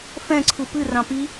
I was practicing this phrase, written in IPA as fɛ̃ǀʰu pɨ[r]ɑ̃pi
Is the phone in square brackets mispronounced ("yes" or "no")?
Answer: no